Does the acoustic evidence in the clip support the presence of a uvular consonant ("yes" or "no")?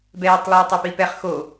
yes